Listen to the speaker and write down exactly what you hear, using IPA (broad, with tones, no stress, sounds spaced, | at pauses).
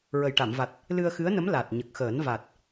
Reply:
ɹ ə˨˩ j ʈ a˨˩˨ m v a˨˩ t̚ | l ɨ˧ ə̯ x ɨ˧˥ ə̯ n ə˧˥ m l a˨˩ t̚ ɲ ə˨˩ k̚ x əː˨˩˦ n v a˨˩ t̚